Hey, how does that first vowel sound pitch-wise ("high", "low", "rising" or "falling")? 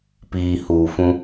low